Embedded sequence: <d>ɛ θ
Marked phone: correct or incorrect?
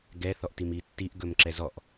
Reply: incorrect